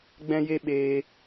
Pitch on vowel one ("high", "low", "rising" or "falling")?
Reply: high